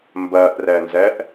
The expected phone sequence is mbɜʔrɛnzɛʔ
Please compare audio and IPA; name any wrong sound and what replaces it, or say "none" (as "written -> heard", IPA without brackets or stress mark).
none